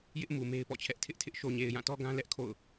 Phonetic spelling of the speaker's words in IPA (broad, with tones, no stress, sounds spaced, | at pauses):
j ɪ˦ ʔ m u˨ m e˦ ɪ̯ p ɔ̰˦˨ t͡ɕʰ ɛ˦ ʔ tʰ ɪ˦ ʔ tʰ ɪ˦ ʔ ʃ o˨ ɲ e˨ ɪ̯ j ã˦˨ t ɔ˦ ɡ ã˦ l ɛ˦ ʔ kʰ o̰˦˨ ʊ̯